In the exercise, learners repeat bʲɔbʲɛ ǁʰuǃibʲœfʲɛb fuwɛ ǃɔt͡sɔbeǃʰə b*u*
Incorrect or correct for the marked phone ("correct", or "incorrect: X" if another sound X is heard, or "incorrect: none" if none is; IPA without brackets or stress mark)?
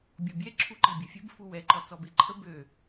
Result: incorrect: ø